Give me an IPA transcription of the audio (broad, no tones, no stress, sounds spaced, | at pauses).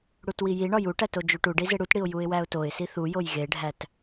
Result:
ɽ u t w i j i ɳ ɒ j u ʈ æ t o d͡ʒ u ʈ u ɖ i z e ɽ u t ɽ i ʊ̯ j u ɪ̯ w æ ʊ̯ t o ɪ̯ s i θ u j o j ɣ e ɖʱ æ t